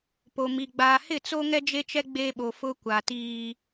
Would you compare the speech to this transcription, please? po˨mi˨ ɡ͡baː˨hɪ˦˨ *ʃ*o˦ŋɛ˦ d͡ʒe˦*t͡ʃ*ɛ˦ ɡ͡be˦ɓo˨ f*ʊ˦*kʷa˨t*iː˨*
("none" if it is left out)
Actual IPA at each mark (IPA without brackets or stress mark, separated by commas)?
t͡s, t͡ʃ, ʊ˦, iː˦